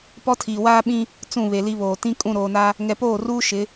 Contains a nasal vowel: yes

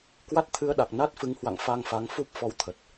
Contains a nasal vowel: no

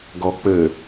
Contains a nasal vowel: no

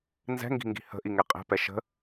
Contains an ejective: yes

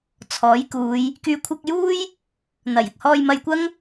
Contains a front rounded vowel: yes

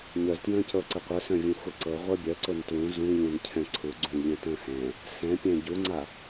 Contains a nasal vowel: yes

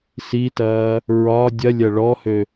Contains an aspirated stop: no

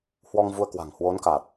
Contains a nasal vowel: no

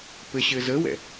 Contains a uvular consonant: no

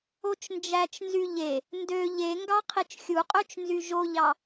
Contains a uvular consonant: yes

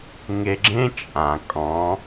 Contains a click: yes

